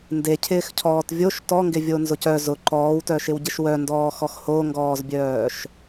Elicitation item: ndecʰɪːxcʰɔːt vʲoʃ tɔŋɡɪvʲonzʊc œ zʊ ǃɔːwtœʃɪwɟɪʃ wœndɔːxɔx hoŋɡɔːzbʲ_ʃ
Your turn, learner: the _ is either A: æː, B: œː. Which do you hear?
B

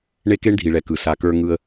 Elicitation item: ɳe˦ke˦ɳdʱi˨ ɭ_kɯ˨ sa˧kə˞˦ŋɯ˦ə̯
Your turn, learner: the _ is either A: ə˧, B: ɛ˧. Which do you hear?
B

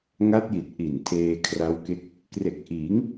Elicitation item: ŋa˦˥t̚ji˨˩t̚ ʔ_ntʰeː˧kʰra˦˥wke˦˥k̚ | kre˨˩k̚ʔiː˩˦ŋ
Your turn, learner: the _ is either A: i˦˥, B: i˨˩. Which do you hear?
B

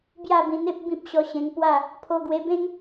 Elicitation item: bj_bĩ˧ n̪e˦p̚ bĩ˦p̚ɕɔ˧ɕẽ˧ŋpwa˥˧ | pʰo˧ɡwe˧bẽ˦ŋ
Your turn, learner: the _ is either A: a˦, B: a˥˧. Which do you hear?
B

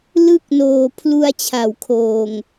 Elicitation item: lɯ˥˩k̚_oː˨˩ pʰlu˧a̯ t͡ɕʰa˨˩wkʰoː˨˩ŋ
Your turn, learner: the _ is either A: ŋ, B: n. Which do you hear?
B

